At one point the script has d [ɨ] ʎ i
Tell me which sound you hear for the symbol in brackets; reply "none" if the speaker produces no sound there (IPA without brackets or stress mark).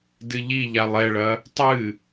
ɨ